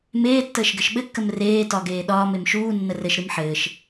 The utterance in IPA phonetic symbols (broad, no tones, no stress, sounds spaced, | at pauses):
m eː tː əː ʃ ɡ ɘ ʃ ɓ ɘ kː ə m r eː t ɒ ɡ eː ɗ ɒː m e m ʃ uː nː ə r ɘ ʃ ɾ ɨ m ħ ɘː ʃ